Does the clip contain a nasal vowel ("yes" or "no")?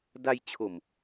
no